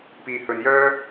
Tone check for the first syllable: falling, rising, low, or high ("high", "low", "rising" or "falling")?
low